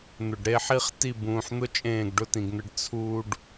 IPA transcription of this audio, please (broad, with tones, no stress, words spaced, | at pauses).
n̪ʊ˨ɖɾe˦ħi˦χ ti˦˨bũː˨ħn̪ʊ˦ t͡ʃʼẽː˦˨ɡɖʊ˦tĩ˨ɡn̪ɘ˦ɖ t͡sʰuː˦ɖ